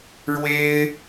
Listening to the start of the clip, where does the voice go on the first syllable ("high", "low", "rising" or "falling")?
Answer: high